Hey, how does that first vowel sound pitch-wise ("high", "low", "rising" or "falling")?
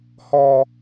high